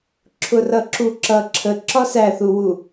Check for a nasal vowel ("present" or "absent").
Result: absent